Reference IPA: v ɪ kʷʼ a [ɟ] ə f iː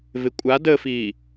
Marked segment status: incorrect: d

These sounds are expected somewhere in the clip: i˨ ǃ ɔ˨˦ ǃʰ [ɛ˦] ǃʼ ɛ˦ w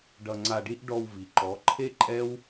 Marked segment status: incorrect: e˦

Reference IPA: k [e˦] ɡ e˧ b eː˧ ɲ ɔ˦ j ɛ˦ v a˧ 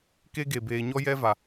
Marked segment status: correct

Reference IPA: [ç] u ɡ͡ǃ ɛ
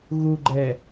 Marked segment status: incorrect: ɣ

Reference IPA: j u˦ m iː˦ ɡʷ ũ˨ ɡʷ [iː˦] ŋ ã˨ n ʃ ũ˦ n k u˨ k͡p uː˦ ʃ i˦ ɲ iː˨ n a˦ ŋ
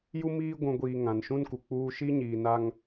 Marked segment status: incorrect: iː˨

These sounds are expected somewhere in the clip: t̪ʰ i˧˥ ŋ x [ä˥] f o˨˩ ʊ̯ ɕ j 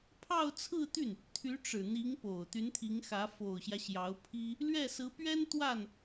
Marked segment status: incorrect: ä˧˥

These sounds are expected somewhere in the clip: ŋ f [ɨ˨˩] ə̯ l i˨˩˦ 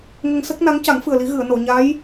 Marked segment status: correct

